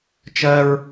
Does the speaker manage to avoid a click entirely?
yes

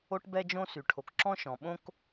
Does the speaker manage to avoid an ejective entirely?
yes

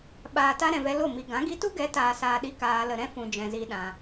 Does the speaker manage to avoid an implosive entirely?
no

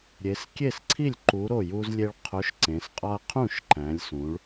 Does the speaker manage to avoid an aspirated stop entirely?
no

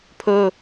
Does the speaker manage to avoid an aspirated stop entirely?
no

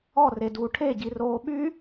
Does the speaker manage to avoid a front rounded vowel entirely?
no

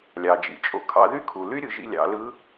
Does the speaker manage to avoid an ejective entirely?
no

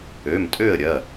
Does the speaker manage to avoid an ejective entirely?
no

